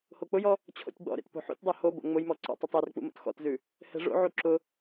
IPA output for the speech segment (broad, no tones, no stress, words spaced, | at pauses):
hok͡pʊjɔ | t͡ɕʰo̰tʲɡ͡bɔ̰ɾḛt po̤ħṵtʲdˤu hobo̰ ŋ͡mʊjmɔ ǀɔ̰tˤɘtˤ ɛrk͡pṵ mo̰txɔ̰tzʉ | hɛ̤ʐo̰ʕu ǁʊ